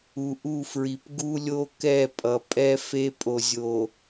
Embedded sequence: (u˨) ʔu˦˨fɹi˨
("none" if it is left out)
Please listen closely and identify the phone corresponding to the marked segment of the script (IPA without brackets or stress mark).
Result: u˨